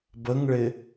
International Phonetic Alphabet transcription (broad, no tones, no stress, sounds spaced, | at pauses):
b ə ŋ ɭ ɪ